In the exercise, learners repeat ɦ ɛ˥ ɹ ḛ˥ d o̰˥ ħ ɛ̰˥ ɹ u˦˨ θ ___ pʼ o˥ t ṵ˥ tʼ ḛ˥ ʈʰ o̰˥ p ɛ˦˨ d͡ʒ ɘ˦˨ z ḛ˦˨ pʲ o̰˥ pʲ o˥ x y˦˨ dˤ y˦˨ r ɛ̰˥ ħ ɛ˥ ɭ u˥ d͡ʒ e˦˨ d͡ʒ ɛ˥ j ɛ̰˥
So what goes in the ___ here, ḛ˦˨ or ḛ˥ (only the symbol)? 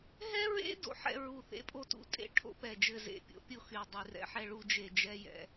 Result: ḛ˥